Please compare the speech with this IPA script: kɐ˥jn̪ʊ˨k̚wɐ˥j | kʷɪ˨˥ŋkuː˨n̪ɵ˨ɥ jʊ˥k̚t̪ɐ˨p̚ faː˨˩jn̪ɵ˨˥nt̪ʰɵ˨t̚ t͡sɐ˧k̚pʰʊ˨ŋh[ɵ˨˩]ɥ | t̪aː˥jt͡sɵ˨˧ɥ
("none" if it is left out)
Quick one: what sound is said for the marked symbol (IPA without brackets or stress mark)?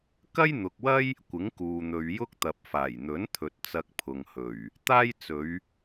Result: ɵ˨˩